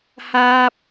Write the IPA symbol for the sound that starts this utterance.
h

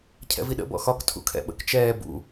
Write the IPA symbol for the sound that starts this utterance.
cʰ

